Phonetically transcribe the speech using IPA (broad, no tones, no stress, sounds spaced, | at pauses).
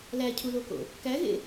l æ cʰ u l o k o̰ | k æ ɣ ḛ